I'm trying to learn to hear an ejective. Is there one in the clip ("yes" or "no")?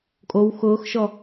yes